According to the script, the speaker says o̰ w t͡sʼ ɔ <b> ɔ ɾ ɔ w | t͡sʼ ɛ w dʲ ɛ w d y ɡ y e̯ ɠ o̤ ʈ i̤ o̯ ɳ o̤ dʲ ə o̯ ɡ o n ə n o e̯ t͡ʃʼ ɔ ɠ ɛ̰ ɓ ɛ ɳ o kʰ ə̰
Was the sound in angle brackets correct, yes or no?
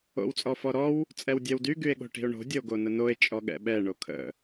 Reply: no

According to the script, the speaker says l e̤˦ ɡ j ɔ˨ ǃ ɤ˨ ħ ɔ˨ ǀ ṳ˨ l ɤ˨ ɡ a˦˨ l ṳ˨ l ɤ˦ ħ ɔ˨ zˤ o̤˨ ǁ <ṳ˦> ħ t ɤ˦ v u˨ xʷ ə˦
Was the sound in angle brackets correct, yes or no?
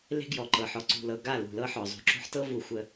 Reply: no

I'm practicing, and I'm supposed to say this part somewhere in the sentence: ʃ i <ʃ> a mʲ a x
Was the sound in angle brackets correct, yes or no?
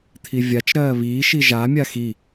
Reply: no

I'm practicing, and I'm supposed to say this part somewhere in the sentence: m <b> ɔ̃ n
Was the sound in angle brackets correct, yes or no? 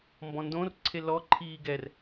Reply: yes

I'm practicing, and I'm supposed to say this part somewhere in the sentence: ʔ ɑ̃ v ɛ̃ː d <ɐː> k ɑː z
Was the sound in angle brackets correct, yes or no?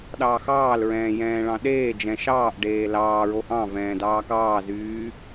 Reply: no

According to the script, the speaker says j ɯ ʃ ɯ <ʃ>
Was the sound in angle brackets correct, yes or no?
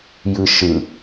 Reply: no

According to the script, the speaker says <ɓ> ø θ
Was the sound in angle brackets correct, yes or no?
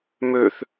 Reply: no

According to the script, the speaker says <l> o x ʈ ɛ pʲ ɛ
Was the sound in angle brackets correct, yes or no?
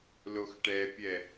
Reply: yes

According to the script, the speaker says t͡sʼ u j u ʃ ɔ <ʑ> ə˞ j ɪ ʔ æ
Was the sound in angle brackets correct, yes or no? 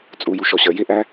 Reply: no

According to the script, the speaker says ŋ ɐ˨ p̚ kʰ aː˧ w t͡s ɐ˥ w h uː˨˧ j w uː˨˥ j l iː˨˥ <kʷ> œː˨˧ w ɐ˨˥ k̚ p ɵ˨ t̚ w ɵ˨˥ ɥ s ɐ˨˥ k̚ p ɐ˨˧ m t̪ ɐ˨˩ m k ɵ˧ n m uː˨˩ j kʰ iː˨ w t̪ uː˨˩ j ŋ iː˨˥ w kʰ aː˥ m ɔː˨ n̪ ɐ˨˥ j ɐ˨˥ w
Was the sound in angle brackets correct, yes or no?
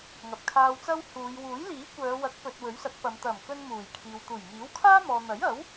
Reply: yes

